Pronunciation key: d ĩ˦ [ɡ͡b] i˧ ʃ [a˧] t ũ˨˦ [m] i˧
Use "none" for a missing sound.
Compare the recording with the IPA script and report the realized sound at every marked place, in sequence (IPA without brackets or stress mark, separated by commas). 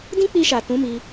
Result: k͡p, a˨, m